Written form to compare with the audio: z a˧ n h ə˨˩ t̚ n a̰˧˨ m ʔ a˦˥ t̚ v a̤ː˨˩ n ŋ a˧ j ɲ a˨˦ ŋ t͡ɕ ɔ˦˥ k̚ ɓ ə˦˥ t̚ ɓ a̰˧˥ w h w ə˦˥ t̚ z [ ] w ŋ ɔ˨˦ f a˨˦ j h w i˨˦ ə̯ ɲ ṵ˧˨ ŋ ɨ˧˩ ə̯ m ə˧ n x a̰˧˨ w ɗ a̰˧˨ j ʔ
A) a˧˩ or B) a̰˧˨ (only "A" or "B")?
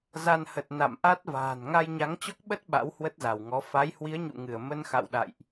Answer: A